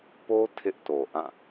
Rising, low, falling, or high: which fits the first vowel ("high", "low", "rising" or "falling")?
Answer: high